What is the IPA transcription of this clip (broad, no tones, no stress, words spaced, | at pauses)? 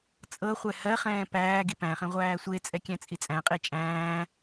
t͡sʼɤχʷɛ hɜχɛ̃ː pæː ɡipæ̃χɛ̃ ʁʷæːsʷet͡sʼɛ kʲæ̃t͡sʼit͡sʼæ̃qʼe t͡ʃʼæ̃ː